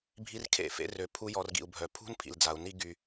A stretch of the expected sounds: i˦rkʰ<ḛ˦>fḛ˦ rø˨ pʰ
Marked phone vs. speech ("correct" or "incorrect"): incorrect